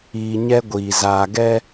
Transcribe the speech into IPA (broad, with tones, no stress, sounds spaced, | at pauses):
iː˨ ɲ ɛ˦ ɡʷ iː˨ z aː˨ ɡ ɛ˦